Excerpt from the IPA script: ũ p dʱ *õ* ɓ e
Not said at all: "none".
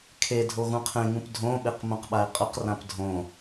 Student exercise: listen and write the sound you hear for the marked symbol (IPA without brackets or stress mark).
õ